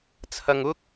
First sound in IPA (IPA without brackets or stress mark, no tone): t͡sʰ